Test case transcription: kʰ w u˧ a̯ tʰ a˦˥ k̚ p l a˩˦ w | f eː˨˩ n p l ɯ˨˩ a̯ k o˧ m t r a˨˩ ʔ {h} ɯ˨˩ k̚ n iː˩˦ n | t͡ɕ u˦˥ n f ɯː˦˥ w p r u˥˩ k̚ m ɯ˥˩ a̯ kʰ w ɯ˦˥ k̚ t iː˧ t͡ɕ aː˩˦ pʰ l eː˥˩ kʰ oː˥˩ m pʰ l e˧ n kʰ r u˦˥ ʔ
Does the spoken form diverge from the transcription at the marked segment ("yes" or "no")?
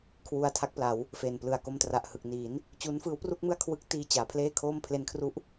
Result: no